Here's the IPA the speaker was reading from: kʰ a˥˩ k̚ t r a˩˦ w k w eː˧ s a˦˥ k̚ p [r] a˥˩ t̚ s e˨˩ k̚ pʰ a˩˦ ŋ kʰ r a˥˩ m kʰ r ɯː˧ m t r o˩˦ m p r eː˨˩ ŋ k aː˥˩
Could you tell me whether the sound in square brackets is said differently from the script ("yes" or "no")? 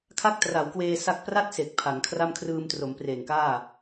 no